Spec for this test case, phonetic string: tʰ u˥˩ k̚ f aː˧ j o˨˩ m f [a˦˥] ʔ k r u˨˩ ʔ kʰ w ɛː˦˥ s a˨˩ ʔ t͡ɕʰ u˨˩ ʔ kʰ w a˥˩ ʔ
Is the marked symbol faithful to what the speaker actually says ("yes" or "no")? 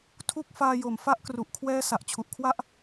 yes